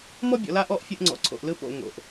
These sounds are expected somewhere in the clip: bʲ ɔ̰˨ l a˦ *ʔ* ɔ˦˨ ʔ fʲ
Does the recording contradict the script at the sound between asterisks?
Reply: no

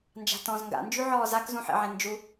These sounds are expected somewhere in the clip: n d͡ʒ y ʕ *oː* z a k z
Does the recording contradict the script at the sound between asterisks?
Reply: yes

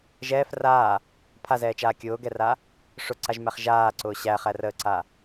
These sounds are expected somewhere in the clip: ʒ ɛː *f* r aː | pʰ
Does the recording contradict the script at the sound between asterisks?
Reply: no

